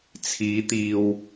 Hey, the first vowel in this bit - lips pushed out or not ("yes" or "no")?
no